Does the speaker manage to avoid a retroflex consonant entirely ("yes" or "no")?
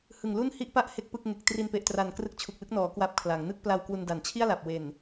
yes